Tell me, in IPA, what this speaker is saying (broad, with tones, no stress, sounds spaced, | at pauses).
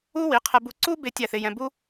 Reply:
u˥ w i˩˥ qʰ ɛ˧ b u˧ ǀ u˥ b ɪ˥ tʲ æ˥˩ θ ɪ˧ j ɛ̃˧ b u˥